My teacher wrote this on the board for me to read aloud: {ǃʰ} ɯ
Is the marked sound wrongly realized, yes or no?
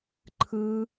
no